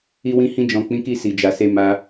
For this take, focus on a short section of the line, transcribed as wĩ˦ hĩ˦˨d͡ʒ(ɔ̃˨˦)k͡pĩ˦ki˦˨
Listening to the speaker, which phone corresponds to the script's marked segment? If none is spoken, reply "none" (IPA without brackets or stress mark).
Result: ɔ̃˨˦